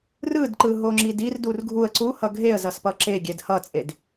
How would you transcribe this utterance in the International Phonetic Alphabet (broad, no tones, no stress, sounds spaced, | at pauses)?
r ɯ d ǃ ɯ ɦ o ŋ͡ǁ i d i r d u r ɡʱ u ə̯ ǀ u h ʌ ɡʱ e ə̯ z ʌ s p ʌ ǁ e ɡʲ ɛ d h ʌ t͡sʼ e d